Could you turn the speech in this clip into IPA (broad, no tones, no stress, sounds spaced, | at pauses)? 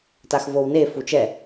t a x v o w n e f u t͡ʃ ɛ